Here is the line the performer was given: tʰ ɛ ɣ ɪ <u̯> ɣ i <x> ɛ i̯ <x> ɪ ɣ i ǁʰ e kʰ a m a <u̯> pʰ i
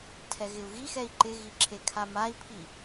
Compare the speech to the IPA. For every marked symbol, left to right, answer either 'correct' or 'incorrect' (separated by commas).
correct, correct, incorrect, incorrect